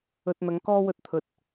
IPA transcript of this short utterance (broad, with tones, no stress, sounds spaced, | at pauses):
ɵ˧ t̚ n̪ ɐ˨˧ ŋ k ɔː˥ w ɵ˧ t̚ t̪ʰ ɵ˨ t̚